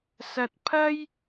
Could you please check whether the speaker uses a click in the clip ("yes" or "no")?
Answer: no